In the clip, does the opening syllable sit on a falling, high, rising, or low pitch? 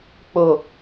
low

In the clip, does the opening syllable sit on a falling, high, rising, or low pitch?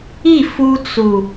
falling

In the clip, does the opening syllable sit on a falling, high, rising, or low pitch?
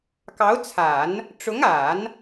rising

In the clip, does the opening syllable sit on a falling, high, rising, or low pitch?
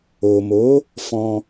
low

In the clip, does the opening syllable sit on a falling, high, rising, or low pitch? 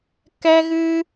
high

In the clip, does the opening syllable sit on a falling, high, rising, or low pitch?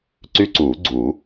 high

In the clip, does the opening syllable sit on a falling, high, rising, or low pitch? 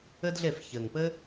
high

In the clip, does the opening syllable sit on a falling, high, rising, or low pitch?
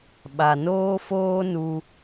low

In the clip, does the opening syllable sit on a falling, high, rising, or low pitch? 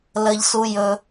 low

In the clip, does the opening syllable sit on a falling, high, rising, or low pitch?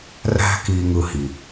high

